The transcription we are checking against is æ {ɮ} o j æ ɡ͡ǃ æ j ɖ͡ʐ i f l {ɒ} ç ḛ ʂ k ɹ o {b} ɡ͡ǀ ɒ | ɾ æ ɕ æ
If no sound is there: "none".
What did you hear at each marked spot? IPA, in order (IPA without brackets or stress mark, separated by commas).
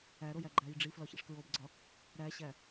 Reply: ɾ, ɒ, b